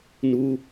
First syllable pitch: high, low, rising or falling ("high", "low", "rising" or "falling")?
high